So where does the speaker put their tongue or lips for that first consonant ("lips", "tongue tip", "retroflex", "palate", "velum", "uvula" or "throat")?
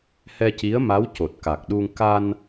throat